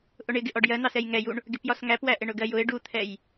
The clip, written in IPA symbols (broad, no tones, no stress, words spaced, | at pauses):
ʔʊɳɪɡɪ ʔɔɖjɜn̪ɑs ɛjŋɛjuɳ | ɡɪpjɒsŋæpwæ ʔɪɳʊɡɜjʊɪ̯ ɖut̪ʰɛj